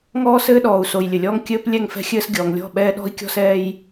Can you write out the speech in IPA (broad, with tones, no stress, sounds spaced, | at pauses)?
ŋ ɔː˦ s ɘː˦ ɗ ɔː˨ u̯ s o˨ j lʲ ɘ˨ lʲ ɔː˦ ŋ kʲ ɘː˦ p lʲ ɛ˦˨ ŋ f ɛ̤˦ xʲ ɘː˦ s ɡʲ ɔː˨ ŋ lʲ ɔ̤˦˨ ɓ ɛː˦ ɗ ɔ̤˦ i̯ kʲ ɔ̤˦ s ɛː˦ j